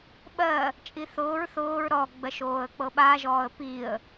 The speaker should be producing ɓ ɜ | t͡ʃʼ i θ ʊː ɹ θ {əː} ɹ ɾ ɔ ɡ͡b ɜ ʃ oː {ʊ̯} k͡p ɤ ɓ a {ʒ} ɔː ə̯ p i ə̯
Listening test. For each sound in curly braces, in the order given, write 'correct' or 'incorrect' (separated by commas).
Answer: incorrect, incorrect, correct